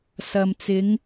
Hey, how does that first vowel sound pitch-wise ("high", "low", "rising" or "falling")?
low